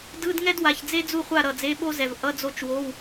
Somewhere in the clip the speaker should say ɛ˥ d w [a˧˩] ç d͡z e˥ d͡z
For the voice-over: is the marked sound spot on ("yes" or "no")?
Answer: yes